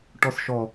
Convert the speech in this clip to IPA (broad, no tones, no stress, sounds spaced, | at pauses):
ʈ ɔ s ʃ ɔ